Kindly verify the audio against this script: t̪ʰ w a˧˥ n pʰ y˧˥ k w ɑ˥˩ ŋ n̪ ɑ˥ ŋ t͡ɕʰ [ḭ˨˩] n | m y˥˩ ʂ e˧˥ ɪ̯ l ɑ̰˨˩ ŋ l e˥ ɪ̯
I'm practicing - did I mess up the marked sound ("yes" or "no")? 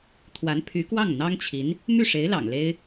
yes